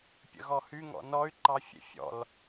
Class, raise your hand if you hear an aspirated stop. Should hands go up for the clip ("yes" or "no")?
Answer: no